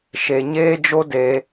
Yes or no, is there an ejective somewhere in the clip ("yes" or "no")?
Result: no